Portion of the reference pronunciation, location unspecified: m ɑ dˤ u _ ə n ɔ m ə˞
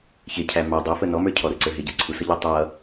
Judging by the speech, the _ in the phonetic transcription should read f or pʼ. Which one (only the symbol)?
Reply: f